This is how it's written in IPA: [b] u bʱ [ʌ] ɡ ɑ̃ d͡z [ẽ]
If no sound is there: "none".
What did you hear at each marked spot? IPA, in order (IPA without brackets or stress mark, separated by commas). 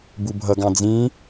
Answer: b, ʌ, ĩ